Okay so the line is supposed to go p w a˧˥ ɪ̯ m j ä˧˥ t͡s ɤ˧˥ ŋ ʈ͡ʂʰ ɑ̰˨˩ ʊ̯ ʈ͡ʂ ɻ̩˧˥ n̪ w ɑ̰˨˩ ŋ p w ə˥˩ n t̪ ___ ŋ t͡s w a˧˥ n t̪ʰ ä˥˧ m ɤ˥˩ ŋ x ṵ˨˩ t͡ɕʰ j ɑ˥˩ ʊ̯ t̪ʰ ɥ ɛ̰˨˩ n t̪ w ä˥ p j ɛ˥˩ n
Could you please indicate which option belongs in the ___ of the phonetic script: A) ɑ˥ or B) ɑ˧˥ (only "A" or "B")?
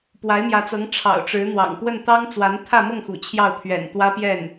A